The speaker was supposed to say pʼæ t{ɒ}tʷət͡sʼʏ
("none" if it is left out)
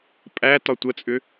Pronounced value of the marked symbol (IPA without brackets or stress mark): ɒ